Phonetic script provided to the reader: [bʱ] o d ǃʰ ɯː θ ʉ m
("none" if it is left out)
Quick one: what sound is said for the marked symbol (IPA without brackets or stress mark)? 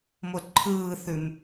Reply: m